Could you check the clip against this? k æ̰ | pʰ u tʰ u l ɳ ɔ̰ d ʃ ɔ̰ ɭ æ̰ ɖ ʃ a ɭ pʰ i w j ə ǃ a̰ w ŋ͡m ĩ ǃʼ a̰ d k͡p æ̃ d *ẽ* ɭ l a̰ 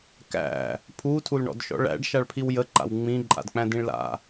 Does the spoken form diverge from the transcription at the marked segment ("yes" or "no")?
yes